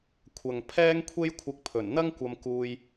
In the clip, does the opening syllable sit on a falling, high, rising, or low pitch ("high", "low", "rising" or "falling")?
low